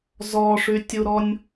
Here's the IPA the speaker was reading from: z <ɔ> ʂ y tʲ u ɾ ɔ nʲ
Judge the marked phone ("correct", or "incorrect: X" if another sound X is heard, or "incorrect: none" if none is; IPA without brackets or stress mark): correct